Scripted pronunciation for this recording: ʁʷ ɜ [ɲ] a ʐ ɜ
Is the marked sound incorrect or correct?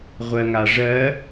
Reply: incorrect